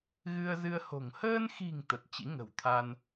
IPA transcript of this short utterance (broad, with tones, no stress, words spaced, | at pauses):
ɣɨ˧ə̯zɨ˧ə̯ho̤˨˩ŋ həː˧nxi̤˨˩ŋ t̪ə˨˩t̚t͡ɕḭ˧˥ŋə̤˨˩w t̪ʰa˧n